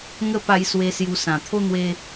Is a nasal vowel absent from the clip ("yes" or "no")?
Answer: no